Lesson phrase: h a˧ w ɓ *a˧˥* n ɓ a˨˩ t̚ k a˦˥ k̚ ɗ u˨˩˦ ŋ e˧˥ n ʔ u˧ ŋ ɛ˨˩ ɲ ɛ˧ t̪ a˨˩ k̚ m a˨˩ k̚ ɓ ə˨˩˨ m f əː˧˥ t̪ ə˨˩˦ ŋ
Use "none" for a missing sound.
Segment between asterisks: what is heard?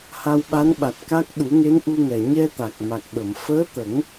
a˧˥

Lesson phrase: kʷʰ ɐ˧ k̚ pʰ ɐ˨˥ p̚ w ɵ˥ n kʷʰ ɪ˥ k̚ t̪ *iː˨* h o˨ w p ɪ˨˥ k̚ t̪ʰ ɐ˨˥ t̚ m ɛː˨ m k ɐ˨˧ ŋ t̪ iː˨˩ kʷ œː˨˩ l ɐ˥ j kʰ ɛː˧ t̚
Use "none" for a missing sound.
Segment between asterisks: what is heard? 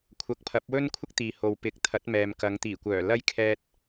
iː˨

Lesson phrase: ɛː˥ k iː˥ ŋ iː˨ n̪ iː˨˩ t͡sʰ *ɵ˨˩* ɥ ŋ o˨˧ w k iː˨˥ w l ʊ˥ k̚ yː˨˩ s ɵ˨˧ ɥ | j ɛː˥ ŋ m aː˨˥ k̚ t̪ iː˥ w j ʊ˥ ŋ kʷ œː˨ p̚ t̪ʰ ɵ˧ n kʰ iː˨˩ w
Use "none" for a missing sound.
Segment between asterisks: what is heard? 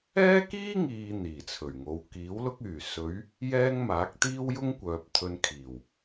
ɵ˨˩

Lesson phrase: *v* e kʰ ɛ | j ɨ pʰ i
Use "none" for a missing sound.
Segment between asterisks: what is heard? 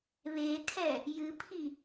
β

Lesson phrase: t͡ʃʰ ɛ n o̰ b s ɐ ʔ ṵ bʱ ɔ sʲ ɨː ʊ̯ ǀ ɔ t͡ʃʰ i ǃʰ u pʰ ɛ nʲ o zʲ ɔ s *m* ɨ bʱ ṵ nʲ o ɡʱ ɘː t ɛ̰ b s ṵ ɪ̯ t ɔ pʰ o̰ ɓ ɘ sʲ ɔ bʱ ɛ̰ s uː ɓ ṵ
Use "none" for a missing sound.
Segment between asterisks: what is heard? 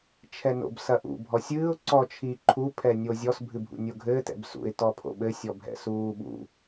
bʱ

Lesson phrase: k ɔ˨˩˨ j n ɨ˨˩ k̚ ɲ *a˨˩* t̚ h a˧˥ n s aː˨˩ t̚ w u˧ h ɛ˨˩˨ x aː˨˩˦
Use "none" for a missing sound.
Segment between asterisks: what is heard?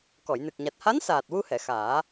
a˨˩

